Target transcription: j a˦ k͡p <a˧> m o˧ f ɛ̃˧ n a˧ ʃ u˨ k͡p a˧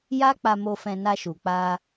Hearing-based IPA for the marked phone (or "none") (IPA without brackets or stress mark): a˧